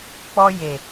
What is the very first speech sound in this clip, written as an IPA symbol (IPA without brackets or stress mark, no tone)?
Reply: k͡p